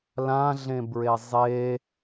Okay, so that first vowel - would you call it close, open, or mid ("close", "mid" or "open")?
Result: open